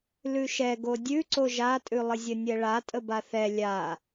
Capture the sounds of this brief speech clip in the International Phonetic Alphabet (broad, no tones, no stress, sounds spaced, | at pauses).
l ʉ ʃ ɛ ɡ o dʲ ʉ ǀ o ʒ a tʼ ʉ lˠ ə zʲ ə nʲ ɛ ɭ a tʼ ə b a θ ɛ lʲ a